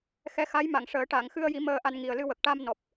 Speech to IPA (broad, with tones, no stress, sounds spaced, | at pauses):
x ɛ˧ x a˧˥ j m a˨˩˨ ŋ ʂ əː˨˩˦ ʈ a˨˩˨ ŋ x ɨ˧ ə̯ j i˨˩˦ m əː˧ ʔ a˧ n ŋ i˨˩ ə̯ l ɨ˧ w ə˨˩ k̚ ʈ a˧ m n ɔ˨˩ p̚